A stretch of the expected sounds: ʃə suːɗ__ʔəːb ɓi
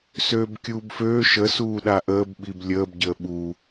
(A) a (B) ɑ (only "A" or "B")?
A